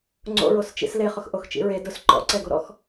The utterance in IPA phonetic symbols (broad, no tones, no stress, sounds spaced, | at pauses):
ŋ͡ǀ o̰ ɹ o s t͡ʃ ḭ s l e χ ʊ x ʔ o x t͡ʃ ḭ ɹ e d ʊ s ǃ ɔ̰ ǀ ɛ ɡ o ɾ ɔ̰ x